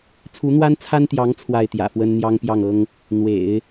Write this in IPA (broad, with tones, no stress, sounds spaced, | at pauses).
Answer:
t͡sʰ u˧˥ n̪ w a˥ n t͡sʰ a˥ n t̪ j ɑ˧˥ ŋ t͡sʰ w a˥˩ ɪ̯ t̪ j ä̰˨˩ f w ə˥ n n̪ j ɑ˥ ŋ p j ɑ˥˩ ŋ ɤ˥ ŋ | n̪ w ḛ˨˩˦ ɪ̯